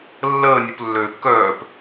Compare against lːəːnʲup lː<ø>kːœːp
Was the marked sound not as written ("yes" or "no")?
no